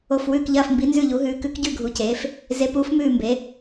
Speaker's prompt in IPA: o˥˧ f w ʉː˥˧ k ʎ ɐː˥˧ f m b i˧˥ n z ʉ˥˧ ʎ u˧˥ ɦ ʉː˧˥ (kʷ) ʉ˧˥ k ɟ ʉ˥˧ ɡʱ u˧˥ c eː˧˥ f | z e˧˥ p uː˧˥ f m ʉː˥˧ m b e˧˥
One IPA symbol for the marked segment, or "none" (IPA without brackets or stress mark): k